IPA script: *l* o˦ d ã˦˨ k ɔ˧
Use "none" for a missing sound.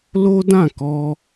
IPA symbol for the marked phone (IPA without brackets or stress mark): l